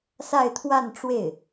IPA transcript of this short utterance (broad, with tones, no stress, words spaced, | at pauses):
sa˥˧ɪ̯t̪ʰwa˥˧n ʈ͡ʂwe˥˩ɪ̯